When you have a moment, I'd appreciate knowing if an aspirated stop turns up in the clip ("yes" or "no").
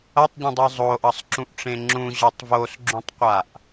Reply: no